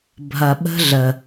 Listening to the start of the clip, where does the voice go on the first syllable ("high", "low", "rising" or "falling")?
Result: low